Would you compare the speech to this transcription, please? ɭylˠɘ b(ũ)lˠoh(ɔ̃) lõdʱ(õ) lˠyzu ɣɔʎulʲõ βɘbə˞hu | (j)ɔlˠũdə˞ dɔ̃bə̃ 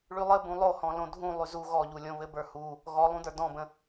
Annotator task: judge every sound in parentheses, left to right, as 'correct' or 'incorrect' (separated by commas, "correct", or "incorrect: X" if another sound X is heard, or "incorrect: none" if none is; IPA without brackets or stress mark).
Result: correct, correct, incorrect: ũ, incorrect: ɣ